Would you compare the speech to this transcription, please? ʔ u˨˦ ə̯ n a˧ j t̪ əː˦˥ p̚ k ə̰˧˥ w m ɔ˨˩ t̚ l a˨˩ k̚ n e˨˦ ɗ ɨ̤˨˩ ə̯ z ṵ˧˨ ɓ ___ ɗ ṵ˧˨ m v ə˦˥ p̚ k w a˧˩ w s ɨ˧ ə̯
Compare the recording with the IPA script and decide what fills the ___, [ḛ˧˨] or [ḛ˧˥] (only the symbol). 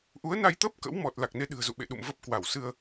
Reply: ḛ˧˨